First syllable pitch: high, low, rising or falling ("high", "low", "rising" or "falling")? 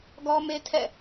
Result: high